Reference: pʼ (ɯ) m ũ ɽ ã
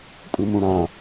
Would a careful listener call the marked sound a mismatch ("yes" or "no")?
no